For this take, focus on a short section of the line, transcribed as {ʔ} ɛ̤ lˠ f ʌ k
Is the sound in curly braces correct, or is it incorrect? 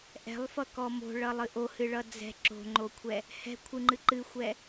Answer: correct